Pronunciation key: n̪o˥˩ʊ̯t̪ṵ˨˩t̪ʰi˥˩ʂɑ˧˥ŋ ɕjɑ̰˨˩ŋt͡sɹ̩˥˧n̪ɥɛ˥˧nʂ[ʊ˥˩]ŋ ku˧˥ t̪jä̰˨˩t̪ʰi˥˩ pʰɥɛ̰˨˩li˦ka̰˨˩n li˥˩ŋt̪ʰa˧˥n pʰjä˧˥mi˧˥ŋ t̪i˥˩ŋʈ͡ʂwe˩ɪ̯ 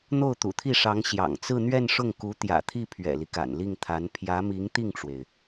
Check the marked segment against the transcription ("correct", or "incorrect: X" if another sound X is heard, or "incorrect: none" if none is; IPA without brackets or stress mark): correct